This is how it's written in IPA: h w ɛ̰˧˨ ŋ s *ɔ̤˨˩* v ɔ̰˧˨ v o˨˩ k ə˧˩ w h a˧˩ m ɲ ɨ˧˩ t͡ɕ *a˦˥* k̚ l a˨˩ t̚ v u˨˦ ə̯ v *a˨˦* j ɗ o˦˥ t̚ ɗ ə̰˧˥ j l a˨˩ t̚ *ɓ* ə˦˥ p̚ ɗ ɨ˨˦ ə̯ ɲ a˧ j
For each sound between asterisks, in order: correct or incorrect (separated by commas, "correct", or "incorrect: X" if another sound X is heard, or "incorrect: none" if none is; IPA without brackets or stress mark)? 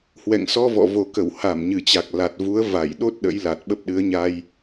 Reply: incorrect: ɔ˧, incorrect: a˨˩, incorrect: a˧˩, correct